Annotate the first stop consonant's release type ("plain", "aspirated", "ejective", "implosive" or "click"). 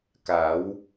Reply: plain